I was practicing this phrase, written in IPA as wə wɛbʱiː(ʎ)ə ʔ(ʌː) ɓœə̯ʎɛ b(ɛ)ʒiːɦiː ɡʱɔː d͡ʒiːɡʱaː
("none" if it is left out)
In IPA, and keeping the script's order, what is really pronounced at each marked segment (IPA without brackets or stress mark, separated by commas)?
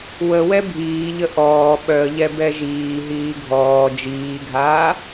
ʎ, ɔː, ɛ